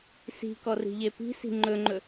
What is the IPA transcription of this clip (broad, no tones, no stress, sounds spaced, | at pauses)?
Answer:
s i̤ k ɔ r i̤ ʎ e p i̤ s i̤ ŋ͡ǃ ɵ ŋ͡ǃ ɵ